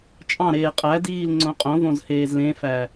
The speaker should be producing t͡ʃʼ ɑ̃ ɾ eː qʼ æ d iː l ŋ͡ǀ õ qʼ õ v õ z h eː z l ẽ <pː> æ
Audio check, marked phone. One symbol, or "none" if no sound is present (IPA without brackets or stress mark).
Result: f